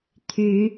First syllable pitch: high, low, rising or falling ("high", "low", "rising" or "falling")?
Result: rising